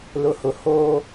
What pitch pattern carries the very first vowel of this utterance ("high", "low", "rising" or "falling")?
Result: low